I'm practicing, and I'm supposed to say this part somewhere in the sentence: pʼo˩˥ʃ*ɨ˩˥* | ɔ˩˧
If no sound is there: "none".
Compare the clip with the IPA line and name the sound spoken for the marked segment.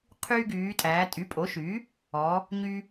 y˩˥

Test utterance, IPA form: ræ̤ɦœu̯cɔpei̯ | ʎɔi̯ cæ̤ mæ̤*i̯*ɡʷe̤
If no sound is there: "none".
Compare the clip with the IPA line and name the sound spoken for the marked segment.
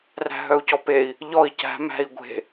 i̯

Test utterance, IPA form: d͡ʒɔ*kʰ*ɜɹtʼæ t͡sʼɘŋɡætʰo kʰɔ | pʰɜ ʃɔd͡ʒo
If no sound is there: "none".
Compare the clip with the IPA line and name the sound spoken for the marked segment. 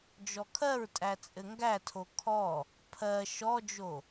kʰ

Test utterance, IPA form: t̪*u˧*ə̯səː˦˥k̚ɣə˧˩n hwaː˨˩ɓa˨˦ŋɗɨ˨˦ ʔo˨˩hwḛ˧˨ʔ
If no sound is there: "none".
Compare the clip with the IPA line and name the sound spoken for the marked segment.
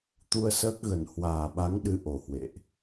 u˧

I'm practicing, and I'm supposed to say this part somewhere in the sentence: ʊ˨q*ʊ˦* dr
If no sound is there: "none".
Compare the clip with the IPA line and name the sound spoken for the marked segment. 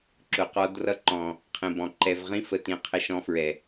ɔ˦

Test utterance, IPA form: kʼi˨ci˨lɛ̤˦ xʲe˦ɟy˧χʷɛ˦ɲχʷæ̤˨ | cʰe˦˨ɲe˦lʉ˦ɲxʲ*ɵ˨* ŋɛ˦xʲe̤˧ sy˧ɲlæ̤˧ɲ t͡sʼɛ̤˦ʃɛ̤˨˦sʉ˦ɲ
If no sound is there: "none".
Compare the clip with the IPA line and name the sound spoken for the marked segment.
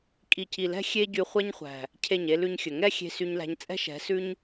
ɵ˨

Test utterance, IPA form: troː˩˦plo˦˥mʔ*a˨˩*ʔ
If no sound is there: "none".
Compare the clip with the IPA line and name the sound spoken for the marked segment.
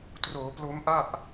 a˥˩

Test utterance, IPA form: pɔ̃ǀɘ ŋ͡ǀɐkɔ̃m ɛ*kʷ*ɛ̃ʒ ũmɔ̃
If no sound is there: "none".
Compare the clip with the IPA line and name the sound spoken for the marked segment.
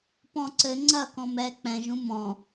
k͡p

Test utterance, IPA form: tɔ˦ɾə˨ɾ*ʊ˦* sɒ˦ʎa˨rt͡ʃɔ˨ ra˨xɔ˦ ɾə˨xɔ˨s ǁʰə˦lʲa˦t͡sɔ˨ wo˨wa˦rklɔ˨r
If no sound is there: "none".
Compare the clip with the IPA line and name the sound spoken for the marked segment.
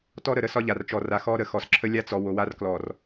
ə˦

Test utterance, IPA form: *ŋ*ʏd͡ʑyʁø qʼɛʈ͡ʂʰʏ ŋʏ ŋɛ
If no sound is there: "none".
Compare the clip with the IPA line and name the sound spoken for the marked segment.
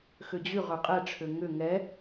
x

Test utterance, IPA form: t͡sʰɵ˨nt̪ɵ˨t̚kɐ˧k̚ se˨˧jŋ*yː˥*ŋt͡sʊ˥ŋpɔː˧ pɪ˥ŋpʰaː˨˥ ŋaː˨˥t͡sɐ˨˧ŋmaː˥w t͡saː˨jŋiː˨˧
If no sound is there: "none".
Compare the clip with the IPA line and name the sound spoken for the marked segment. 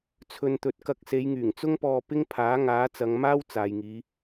yː˨˩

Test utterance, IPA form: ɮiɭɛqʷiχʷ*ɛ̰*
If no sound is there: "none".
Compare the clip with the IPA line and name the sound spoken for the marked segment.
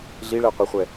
ɛ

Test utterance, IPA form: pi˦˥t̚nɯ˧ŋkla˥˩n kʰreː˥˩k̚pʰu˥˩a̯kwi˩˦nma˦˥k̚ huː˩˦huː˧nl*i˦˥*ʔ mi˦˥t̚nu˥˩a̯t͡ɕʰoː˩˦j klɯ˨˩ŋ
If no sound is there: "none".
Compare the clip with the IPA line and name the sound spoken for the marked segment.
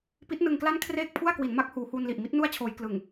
i˨˩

